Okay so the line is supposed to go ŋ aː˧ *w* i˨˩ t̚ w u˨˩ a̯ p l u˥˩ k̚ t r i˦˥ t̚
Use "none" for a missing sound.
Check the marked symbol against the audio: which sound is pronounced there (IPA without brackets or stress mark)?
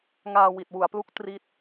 w